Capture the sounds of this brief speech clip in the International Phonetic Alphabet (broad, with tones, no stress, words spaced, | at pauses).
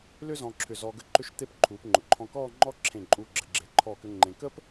lʏ˥zɔ̃˧ǁʰʏ˧˩ zɔ˧ɡə˥ǃʏ˥˧ʃt̪e˥˧p ǃʰuː˩˧pŋ͡ǃʊ˩˧ǃʰɔ̃˧ kɔː˥˧ŋ͡ǃɔ˥ ǁʰẽ˧˩ ǃʼuː˧ɡ͡ǁə˩˧ ɡ͡ǁe˩˧ǃʰɔː˧˩kʏ˧ ŋ͡ǃẽ˧ kə˥p